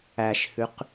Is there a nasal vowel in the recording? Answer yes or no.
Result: no